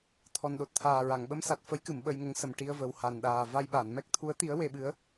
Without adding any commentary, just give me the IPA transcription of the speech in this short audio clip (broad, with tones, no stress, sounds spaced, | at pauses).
t̪ʰ ɔ˨˩ n ɗ o˨˩ t̚ t̪ʰ aː˨˩ ɹ a˨˩˨ ŋ ɓ ə˧˥ m s a˨˩ t̚ f ə˧˥ j k ɨ˨˩˨ m ɓ ə˧ j ŋ ə˧˥ ŋ s ə˨˩ m ʈ i˧ ə̯ v ə˨˩ w h a˨˩ n ɗ aː˨˩ v a˧ j ɓ a˨˩˨ n m ɛ˦˥ k̚ t̪ʰ u˧˥ ə̯ t̪ i˧˥ ə̯ w e˧ ɓ ɨ˧˥ ə̯